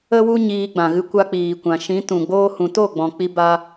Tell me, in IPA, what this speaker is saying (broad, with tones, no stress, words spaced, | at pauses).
ə˦wu˦ ɲiː˧ɡ͡bã˨ɣɨ˧ kʷa˧k͡piː˨kʷã˨ʃĩ˨˦ tũ˨ ɡ͡boː˧hũ˨to˦˨ ɡ͡bɔ̃˨k͡pi˧ ba˦